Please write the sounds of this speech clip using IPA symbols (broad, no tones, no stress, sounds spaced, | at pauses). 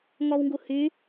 ŋ ɔ w ŋ ɡ u h y